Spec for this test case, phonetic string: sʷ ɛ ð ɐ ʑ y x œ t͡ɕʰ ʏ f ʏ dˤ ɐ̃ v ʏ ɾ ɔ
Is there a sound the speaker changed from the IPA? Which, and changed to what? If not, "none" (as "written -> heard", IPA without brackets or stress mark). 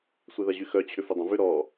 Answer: none